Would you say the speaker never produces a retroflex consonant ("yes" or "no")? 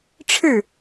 no